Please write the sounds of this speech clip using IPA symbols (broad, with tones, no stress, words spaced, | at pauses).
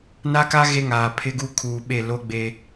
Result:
na˦ka˦ ɣe˦ŋaː˨ pʰɪ˦ɡu˦ kʰuː˨ɓe˦˨loː˦ ɡ͡be˦